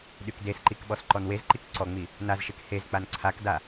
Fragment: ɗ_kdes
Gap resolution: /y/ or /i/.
y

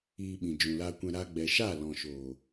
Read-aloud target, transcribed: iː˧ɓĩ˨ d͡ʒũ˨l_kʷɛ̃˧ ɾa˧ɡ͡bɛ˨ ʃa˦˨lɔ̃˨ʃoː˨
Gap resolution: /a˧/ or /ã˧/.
a˧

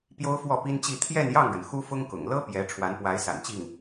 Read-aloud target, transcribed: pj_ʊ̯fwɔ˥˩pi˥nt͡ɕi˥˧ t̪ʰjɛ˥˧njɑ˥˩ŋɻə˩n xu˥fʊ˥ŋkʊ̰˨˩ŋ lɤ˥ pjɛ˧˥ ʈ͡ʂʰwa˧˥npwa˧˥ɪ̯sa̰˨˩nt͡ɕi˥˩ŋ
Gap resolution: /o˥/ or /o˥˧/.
o˥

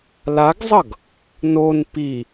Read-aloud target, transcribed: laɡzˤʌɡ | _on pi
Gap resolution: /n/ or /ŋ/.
n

